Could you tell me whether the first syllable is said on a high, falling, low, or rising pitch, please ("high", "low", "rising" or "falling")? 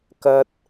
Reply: high